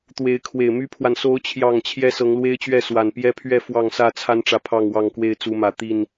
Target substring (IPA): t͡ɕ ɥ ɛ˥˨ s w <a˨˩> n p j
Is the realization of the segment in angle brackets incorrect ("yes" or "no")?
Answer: no